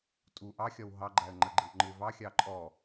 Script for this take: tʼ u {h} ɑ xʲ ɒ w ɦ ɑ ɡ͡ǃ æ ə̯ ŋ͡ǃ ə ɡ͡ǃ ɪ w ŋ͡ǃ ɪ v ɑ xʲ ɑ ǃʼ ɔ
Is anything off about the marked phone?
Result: yes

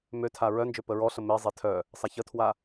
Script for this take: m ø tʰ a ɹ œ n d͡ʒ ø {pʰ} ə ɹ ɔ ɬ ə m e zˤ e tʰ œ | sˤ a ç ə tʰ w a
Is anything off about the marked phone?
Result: yes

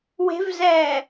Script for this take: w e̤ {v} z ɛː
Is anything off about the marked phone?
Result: no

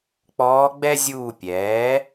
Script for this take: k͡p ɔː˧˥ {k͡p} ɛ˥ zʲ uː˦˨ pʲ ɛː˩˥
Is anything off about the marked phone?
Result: yes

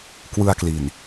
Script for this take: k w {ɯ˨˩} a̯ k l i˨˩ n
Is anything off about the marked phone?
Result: yes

